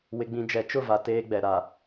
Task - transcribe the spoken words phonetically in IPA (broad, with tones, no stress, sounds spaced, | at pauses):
w ɪ˨ ɡ͡b ĩ˨ d͡ʒ ɛ˨˦ t͡ʃ ʊ˦˨ v a˨ t eː˦ ɡ͡b ɛ˨ ɾ a˨